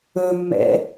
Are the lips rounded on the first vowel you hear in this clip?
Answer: yes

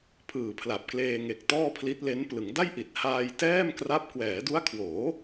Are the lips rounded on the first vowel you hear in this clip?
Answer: no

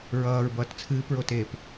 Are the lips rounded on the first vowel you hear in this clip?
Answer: no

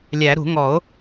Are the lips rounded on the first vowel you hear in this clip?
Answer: no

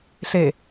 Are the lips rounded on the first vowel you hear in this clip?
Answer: no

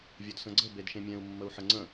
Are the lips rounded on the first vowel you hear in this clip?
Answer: yes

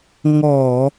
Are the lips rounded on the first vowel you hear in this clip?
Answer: yes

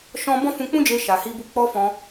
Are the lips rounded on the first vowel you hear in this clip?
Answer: yes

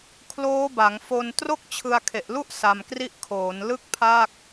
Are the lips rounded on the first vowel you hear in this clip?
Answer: yes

